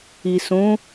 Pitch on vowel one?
low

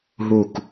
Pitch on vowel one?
falling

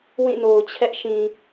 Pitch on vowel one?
falling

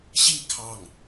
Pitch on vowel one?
falling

